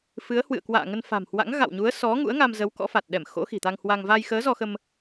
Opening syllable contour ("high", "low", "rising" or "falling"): rising